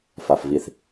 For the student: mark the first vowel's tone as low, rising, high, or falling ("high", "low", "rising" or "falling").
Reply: low